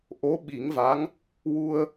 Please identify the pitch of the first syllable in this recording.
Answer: rising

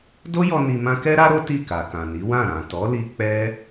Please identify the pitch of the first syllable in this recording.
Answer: high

